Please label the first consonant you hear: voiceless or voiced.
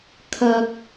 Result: voiceless